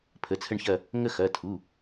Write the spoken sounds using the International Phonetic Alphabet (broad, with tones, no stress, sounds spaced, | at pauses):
pʰ ə˩˧˩ t͡sʰ ə˦˨ ɳ ç ɐ˦˨ | ŋ ə˦˨ x ɐ˩˧˩ tʰ u˩˧˩